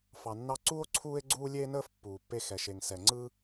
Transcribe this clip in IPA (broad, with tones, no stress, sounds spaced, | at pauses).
f ɑ˨ nː ɑ˦ ǀ u˦ o̯ ǀʰ uː˦ e̯ ɡ͡ǀ uː˦ lʲ eː˦ n əː˦ f pː uː˨ pː e˦ x ɛ˨ ʃ e˨ ŋ s ɛ˨ ŋ͡ǀ ɯ˦